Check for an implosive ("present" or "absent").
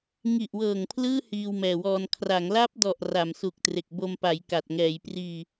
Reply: absent